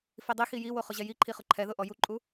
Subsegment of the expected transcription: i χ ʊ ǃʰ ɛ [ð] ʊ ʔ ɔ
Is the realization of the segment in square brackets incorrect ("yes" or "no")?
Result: no